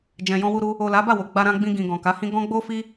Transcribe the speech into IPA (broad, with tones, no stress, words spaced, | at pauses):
d͡ʒɛ̃˨jɔ̃˧wu˧ɾu˧ | o˨ la˨˦ba˦˨wo˨ ɡ͡ba˧ɾã˧ɡ͡bĩ˧ɡĩ˨ ɡɔ̃˨ka˨˦hĩ˦ ɡɔ̃˦ɡ͡bo˦fi˦